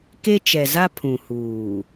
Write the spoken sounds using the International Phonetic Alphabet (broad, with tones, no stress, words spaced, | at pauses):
ke˦t͡ʃɛ˨za˦ pʰũ˨huː˨